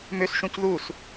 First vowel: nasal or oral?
oral